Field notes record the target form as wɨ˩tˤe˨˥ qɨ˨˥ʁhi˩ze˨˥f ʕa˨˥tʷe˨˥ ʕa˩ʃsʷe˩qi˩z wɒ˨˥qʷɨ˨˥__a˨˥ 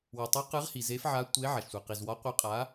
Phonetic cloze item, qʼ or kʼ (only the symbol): qʼ